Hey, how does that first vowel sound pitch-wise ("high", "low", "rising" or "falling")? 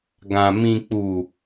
low